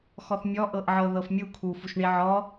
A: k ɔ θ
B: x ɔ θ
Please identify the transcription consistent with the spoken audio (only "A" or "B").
B